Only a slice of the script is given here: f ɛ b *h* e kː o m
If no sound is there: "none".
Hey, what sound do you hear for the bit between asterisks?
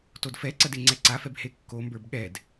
h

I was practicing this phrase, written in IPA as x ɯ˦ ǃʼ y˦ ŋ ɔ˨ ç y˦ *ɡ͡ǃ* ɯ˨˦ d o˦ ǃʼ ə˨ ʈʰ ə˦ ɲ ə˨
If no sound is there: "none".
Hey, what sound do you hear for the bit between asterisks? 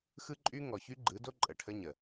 ɡ͡ǃ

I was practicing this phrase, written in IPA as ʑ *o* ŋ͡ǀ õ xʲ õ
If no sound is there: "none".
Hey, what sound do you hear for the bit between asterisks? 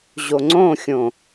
o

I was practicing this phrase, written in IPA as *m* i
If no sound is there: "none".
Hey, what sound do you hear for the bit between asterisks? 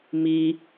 m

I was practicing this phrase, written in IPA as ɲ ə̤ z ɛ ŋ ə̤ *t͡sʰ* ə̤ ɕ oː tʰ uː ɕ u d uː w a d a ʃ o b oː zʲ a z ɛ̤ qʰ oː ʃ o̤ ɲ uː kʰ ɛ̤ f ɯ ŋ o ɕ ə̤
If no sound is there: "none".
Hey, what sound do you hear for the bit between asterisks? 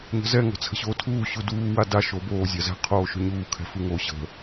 t͡sʰ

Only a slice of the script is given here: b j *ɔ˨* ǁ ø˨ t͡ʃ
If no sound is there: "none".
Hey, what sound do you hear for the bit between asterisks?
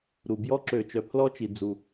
ɔ˦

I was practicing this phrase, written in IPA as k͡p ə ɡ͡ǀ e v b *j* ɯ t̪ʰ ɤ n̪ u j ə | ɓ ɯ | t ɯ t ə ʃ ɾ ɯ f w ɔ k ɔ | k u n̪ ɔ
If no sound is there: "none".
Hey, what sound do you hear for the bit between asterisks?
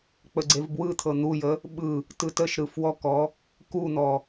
w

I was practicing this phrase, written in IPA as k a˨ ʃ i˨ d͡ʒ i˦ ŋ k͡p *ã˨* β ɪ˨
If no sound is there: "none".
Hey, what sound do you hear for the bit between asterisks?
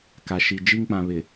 ã˨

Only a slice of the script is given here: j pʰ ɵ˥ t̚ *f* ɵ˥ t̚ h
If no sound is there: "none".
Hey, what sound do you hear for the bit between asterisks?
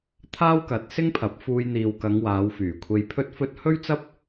f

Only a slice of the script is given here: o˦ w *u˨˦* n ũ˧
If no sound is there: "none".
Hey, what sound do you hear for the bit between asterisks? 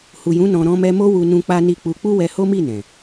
u˧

